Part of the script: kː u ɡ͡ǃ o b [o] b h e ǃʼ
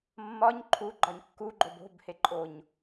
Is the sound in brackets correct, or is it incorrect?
incorrect